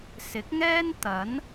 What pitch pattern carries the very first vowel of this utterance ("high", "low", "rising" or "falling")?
rising